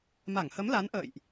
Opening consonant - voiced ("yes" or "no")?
yes